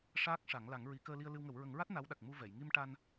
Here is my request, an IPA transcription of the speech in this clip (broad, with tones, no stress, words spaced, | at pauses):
ʂaː˦˥k̚ʂa˨˩˦ŋ la˨˩˦ŋɹi˨˩˦ kəː˧li˧ə̯lɨ˧wŋə˨˩˦w ɹə˨˩˦ŋɹa˦˥t̚ na˧˥wɗa˨˩k̚mu˧vɛ˨˩˨j ŋi˧mʈa˧n